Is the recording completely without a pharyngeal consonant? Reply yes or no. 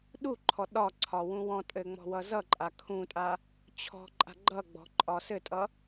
yes